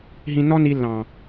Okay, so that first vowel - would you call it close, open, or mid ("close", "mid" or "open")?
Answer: close